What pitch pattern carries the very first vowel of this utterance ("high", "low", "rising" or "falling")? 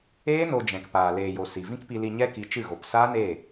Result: high